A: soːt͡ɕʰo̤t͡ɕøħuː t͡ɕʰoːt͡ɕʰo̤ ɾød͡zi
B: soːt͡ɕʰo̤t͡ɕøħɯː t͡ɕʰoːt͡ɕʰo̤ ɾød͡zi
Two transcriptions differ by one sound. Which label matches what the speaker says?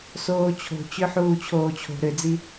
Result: A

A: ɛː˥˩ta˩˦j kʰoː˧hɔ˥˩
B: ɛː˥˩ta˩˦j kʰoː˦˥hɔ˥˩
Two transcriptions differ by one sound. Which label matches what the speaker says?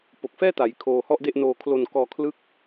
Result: A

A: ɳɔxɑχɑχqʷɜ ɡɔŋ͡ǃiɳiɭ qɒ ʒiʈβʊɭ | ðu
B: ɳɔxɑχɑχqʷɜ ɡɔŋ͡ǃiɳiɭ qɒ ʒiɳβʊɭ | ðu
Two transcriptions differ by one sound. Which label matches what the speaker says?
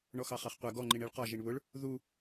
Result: B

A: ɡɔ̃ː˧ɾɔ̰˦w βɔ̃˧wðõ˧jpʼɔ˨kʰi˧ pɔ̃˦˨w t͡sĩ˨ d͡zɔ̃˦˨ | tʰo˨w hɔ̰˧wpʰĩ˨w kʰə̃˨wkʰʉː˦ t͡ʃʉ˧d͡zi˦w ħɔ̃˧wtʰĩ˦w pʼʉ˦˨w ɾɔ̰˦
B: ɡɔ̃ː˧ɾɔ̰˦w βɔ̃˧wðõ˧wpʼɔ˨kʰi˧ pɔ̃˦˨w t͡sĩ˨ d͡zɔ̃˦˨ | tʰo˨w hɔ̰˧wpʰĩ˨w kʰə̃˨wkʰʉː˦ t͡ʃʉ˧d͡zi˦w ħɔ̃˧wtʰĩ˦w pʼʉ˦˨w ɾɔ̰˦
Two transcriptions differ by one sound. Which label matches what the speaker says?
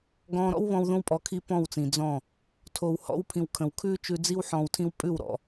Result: B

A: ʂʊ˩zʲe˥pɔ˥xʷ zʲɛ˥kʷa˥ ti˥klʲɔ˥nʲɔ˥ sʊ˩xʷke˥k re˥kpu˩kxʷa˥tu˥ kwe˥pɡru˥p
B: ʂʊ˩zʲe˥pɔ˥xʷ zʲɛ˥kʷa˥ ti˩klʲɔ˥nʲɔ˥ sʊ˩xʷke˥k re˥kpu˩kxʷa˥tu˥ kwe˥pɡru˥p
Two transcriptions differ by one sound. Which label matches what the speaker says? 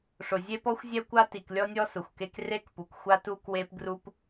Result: B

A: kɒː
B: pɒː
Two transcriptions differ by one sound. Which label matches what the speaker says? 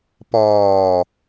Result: B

